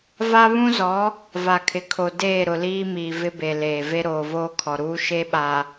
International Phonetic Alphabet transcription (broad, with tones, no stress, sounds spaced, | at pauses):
v a˦ β ũ˦ z ɔ˨˦ | v a˨ kʰ ɪ˨ kʰ o˨ d eː˦˨ ɾ ʊ˨ l iː˦ m iː˨ v ɪ˦ b e˨ l eː˨ v e˦ ɾ oː˨ v oː˦ kʰ ɔ˨ ɾ uː˦ ʃ e˦ ɓ a˨